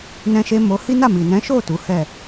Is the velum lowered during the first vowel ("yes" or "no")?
yes